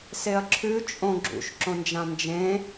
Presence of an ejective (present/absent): present